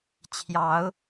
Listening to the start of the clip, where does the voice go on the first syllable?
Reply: rising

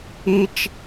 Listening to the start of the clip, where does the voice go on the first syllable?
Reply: high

